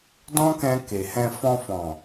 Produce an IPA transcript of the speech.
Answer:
d ɔ̃˦ k ɛ̃˧ k e˨ h ɛ̃˧ f ɔ̃˧ f ɔ̃˨

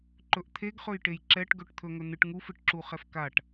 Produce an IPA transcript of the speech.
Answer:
ǃ ɵ ʔ t̪ʰ e ɡ χ ɵ j ʈ e j ǁ ɛ ʈ ɡ ɵ ʈ t̪ʰ ɵ ŋ ɵ n̪ ɨ ʈ ŋ u f ɨ ʈ ǁ u χ ɛ f k a ʈ

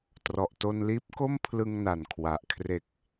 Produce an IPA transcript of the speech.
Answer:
t r ɔ˨˩ ʔ t o˧ n l iː˦˥ p̚ k o˥˩ m pʰ l ɯ˧ ŋ n a˨˩ n kʰ w a˨˩ ʔ kʰ r e˨˩ k̚

